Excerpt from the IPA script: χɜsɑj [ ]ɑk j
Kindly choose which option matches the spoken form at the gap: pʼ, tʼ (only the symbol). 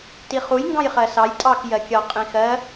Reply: tʼ